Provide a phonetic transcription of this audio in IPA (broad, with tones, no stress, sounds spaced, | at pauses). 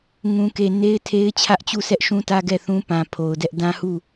ŋ ũ˨ k e˨ n e˦ ɪ̯ tʰ e˦ ɪ̯ t͡ɕʰ ä˦ ʔ t͡ɕ u˦˨ sʰ ɛ˦ ʔ ʃ ũ˦ t ä˦ ɡ ɛ˦˨ θ ũ˦ p ã˨ pʰ o˨ ʊ̯ d ɛ˦ ʔ d ã˦ h u˦˨